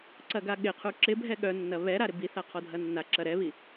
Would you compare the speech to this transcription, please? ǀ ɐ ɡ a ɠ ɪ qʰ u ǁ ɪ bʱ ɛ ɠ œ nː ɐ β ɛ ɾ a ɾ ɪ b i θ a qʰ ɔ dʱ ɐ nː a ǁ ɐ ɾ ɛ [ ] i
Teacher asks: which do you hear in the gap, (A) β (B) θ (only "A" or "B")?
A